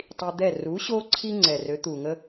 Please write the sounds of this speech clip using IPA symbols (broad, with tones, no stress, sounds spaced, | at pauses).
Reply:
tˤ i˧ d̪ ɛ˥˩ r u˩˥ ɕ o˧ ǀʰ i˧ ŋ͡ǀ ɛ˩ r ø˩˥ t̪ u˩ ŋ ə˧